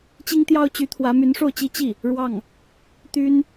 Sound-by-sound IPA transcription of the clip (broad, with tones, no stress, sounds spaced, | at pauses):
t͡ɕ i˥ ŋ t̪ j ɑ˥ ʊ̯ t͡ɕ y˧˥ t̪ʰ w ä˧˥ m y˧˥ n ʂ o˥˩ ʊ̯ t͡ɕ i˥ t͡ɕ i˥˩ | ɻ w ɑ˥˩ ŋ | t̪ y˥ n